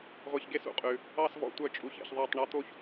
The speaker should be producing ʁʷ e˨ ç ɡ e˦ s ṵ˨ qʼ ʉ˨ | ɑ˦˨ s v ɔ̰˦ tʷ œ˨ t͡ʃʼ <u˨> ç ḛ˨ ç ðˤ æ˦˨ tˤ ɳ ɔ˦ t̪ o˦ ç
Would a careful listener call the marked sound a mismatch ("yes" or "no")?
no